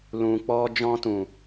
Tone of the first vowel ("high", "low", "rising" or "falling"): low